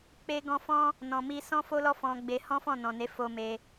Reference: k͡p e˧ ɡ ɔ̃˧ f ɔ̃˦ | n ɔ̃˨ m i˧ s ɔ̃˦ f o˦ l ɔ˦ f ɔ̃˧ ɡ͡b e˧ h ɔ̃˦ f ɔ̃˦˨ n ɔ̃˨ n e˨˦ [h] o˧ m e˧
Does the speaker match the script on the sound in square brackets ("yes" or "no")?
no